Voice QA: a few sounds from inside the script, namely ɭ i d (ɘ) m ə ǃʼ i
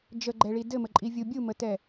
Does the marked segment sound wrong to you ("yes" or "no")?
no